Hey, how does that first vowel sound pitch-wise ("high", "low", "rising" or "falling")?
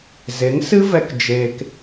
rising